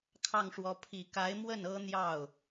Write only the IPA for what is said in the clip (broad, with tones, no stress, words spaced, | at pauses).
kʰɑ˥˩ŋʂwɔ˧˥ pʰi˨˩ka˧˥ɪ̯ mwə˥˩n ɤ˥n̪jɑ˥˩ʊ̯